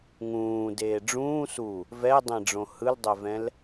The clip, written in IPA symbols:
ŋ ũː d eː ɖ͡ʐ ũː s u | v ɛ dˤ ẽ ɖ͡ʐ õ h ɯ l dˤ ɛ v ɛ̃ l

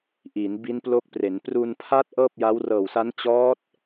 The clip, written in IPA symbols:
ʔ i˩˦ n b i˦˥ n p l o˦˥ k̚ p r e˩˦ n p r u˧ n pʰ a˦˥ t̚ ʔ ɤː˥˩ p̚ j a˦˥ w r ɤː˨˩ w s a˦˥ n t͡ɕ ɔː˦˥ t̚

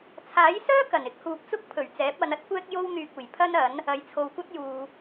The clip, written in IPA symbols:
t͡sʰ aː˨˥ j s œː˥ k ɐ˨˩ n ɪ˧ k̚ h uː˨ p̚ t͡s ʊ˥ k̚ pʰ ɵ˨˩ ɥ t͡s ɛː˨˥ p̚ ɐ˨˧ n ɐ˥ t̚ kʷ ɛː˥ k̚ j o˥ w n̪ yː˧ k̚ uː˨˩ j pʰ ɐ˥ n ɐ˨˥ n | ɐ˨ j t͡sʰ o˨ w kʷ ɐ˥ t̚ j uː˨

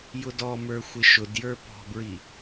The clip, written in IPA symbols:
j ʊ d ɔ m ə˞ xʷ ɪ ʃ ʊ d j ə˞ p ɔ̤ b ɹ i

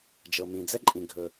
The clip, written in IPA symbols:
d͡ʒ ɤ˩ m ĩ˩ d͡z ɛ˥ ǃʼ ĩ˩ ɡʱ ɵ˩

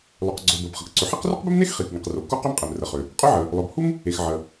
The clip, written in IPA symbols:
lˠ ø˩ q ɡ͡ǀ o˩ b əː˩ b χ ə˩ k ǀ ʏ˩ ħ i˥ q r ʏ˥ q b ɪ˥ m n e˥ x χ i˩ k ŋ i˩ q r o˩ k u˥ q ø˥ m qʼ e˩ m r ə˩ χ ʏ˩ | qʼ ø˥ ʕ əː˩ | lˠ œ˩ b h u˥ m | e˩ x ʕ ə˩

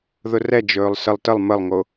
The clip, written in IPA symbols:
ð ʊ r ɛ d͡ʒ ɵː lˠ s ə lˠ t ə lˠ m ə lˠ ŋ o

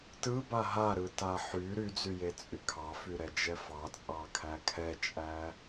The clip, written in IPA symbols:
t ɯ b a ɦ a ɾ ɯ t a ħ y ɾ y d͡z y j e t͡sʼ y kʰ ɑ f y ɾ ɛ d͡ʒ ɛ f ɑ t͡sʼ ɑ kʰ æ kʰ ɛ t͡ʃʼ æ

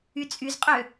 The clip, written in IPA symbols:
y t͡sʼ y z qʼ ø

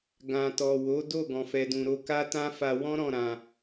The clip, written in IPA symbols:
ɡ ã˨ t ɔ˨ w o˨˦ d o˦˨ ɡ ɔ̃˨ f ɛ˨ d ũ˨ ɾ o˧ k a˦ t ã˦ f a˧ w ɔ̃˦ ɾ ɔ̃˦˨ ɾ ã˨

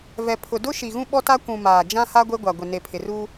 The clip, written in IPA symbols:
v ɛ˨ pʰ ʊ˨ d ʊ˦ ʃ i˨ ɣ ũ˦ ɓ ɔ˦ t a˦ kʷ ũ˨ m aː˨ d͡ʒ ã˦ h a˦ ɡʷ e˦ ɡʷ a˨ ɡʷ ɪ˨ n e˨ pʰ ɪ˨ r uː˦

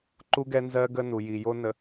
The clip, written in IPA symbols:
ǃ u˨ ɡ ɛ˨ n z ɜ˨ ɡ ə˦ n u˨ j i˨ j o˦ n ə˨

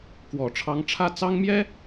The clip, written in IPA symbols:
k w ɔ˨˩ ʈ͡ʂʰ ɑ˧˥ ŋ ʈ͡ʂʰ ä˥˩ t͡s ɑ˥ ŋ m j ɛ˥

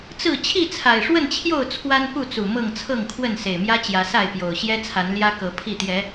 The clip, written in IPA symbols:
t͡s ɹ̩˥˨ t͡ɕʰ i˥˨ t͡sʰ a˨˩ ɪ̯ ʂ w ə˥˨ n t͡ɕʰ j o˥˨ ʊ̯ t͡sʰ w a˦ n p u˥˨ t͡s u˨˩ m ɤ˥˨ ŋ t͡sʰ ɤ˥˨ ŋ kʰ w ə˥˨ n s e˨˩ ɪ̯ m j ä˦ t͡ɕ j ä˨˦ s a˥˨ ɪ̯ p j o˨˩ ʊ̯ ɕ j ɛ˦ t͡sʰ a˨˦ n l j ä˦ k ɤ˨˦ pʰ i˥˨ t̪ j ɛ˨˦

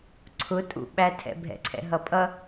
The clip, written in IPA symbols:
ǀʰ ʊ tʼ ṵ ɓ æ tʰ ɛ̰ bʱ ɛ̰ ǀʰ ɛ̰ ɦ ʌ pʼ ʌ

